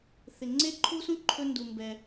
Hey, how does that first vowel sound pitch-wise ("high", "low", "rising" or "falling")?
high